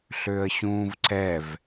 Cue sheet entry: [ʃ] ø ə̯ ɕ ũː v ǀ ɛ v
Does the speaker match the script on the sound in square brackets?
no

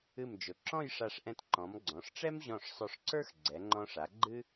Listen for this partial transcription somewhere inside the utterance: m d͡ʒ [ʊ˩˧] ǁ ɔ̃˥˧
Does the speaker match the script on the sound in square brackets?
yes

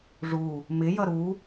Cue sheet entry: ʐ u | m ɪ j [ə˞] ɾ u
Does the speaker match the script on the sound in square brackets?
no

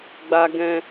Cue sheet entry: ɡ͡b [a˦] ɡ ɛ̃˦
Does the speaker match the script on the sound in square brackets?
yes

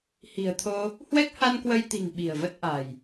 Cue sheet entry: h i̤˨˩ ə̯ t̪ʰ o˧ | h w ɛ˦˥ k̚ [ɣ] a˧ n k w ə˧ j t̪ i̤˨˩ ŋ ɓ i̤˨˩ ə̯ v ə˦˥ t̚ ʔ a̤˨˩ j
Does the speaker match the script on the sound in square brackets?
no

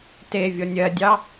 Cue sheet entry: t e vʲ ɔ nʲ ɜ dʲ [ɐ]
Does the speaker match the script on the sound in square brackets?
no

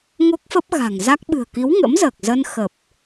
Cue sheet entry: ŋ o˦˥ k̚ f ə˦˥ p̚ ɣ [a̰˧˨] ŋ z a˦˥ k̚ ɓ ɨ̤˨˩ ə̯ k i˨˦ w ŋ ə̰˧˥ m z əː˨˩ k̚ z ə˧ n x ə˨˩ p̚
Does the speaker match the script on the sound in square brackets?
no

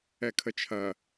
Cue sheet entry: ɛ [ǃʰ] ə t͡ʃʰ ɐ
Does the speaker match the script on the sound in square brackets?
no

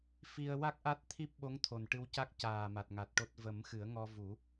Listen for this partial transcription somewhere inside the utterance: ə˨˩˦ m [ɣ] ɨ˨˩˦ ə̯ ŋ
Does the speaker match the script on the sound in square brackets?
no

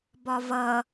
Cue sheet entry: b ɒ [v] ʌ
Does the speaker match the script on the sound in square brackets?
yes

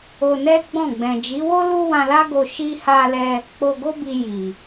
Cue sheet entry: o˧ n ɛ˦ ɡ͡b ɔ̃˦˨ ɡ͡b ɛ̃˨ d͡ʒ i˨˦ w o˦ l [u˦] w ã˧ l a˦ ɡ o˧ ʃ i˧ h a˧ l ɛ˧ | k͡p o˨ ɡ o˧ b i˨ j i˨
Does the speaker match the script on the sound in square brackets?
yes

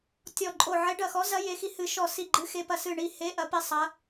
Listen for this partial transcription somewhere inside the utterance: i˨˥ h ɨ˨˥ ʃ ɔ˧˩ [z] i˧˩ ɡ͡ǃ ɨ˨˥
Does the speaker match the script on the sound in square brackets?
no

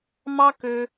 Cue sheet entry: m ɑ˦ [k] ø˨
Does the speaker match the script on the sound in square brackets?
yes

